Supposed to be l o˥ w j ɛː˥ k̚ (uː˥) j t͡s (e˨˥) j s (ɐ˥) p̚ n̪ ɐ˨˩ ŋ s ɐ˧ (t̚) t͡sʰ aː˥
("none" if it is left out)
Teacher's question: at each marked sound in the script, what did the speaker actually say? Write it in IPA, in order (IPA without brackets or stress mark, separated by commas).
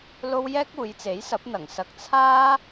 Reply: uː˨˧, e˨˥, ɐ˨˥, k̚